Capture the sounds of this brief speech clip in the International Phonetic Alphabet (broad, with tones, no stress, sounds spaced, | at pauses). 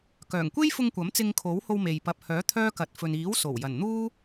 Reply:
k œː˨˩ ŋ kʷ e˥ j f ʊ˧ ŋ kʷ ɐ˨˥ m t͡s ɪ˧ ŋ kʰ o˨˥ w h o˧ w m e˨ j p ɐ˨ p̚ h œː˨˥ t̪ʰ œː˥ k ɐ˨ t̚ f ɵ˨ n iː˨˥ w s o˨˩ w j ɐ˨˩ n n̪ uː˥